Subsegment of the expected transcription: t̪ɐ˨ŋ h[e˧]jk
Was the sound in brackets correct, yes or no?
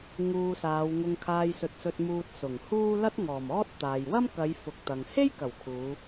no